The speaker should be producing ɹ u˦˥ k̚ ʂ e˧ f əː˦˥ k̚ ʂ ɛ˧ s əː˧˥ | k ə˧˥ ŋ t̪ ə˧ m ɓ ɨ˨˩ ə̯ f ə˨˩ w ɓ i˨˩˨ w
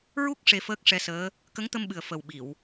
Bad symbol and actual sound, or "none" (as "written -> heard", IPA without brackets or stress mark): none